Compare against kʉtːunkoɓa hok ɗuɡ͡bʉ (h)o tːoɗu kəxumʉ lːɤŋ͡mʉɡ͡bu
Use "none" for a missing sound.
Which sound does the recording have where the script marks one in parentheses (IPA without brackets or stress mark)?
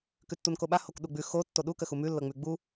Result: x